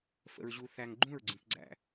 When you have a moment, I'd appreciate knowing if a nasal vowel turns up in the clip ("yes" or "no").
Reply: yes